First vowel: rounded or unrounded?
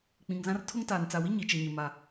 unrounded